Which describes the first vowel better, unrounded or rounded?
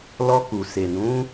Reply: rounded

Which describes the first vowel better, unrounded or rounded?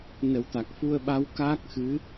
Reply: unrounded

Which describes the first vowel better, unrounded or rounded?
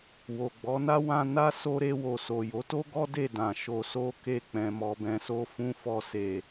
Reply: rounded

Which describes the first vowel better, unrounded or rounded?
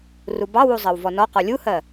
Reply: rounded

